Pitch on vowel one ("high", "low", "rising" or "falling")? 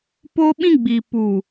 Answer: high